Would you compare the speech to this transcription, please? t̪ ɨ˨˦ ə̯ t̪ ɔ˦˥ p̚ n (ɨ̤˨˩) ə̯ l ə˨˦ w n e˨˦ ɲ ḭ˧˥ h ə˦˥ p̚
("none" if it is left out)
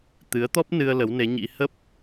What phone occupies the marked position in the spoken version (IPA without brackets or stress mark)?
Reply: ɨ˧